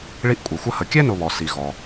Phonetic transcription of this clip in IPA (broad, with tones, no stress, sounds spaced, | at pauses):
ɭ i˦ ʔ kʷʼ i˩ xʷ ə˦ h ə˨ kʲ ɛ˥ n ʊ˨ β ɔ˩ s i˨ ɣ ɔ˩